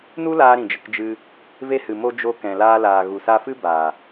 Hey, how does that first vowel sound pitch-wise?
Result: high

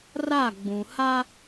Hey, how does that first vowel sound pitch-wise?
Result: falling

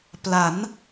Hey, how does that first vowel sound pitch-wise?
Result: rising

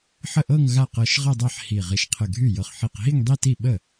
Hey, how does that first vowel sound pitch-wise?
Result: falling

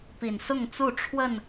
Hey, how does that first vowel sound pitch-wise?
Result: low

